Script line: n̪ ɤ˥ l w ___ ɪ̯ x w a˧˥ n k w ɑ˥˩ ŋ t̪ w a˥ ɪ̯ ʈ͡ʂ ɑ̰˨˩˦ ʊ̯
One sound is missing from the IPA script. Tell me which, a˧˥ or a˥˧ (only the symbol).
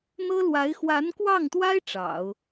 a˧˥